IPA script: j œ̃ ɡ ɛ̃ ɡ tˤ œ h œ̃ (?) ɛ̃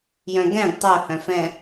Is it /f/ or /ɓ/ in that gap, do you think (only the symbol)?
f